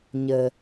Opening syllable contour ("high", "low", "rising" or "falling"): low